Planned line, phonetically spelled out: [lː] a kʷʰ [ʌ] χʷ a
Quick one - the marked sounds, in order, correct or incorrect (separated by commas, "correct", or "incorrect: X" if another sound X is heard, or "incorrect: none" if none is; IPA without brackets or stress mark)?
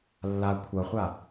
correct, correct